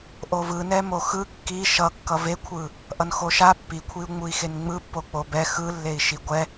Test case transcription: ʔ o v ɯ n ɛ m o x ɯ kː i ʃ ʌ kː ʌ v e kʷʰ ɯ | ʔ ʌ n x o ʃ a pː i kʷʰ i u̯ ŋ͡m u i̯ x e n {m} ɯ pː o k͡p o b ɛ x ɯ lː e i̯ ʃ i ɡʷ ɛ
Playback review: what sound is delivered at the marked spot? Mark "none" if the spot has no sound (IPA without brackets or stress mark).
ŋ͡m